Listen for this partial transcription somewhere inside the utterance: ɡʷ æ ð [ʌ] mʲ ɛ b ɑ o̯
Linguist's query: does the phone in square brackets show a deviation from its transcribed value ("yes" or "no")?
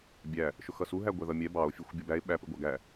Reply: no